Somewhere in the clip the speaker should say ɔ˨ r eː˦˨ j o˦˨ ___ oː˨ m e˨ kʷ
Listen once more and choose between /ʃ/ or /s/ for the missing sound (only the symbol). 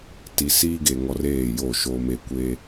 ʃ